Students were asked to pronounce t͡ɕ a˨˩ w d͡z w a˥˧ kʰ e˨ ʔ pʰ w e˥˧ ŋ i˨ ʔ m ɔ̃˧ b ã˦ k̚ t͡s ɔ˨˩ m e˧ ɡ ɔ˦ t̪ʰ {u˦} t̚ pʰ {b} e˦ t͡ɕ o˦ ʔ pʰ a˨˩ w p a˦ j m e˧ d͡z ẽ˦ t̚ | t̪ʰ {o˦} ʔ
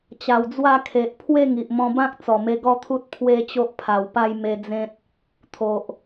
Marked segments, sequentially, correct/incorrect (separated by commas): correct, incorrect, incorrect